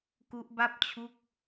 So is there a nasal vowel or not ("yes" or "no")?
no